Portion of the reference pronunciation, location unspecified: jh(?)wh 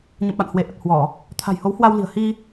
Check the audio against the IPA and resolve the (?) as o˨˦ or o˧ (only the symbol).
o˨˦